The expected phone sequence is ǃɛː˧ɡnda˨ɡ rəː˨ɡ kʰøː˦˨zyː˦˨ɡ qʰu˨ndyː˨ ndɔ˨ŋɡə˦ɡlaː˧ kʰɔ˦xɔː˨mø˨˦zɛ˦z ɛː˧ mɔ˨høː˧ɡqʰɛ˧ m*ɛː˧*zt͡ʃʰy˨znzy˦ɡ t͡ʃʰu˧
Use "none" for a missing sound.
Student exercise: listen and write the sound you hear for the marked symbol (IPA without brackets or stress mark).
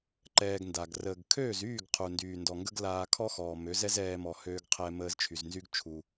əː˧